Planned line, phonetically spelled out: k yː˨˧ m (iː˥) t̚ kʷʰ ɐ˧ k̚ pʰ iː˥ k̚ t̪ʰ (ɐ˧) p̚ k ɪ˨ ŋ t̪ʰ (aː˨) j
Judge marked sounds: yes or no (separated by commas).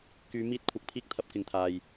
yes, yes, yes